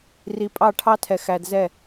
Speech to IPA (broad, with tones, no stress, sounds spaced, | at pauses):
r i˨ pʼ ɑ˦˨ ʈʰ ɑ˦ tʰ ɛ˨ x æ˨ d z ɛ˦˨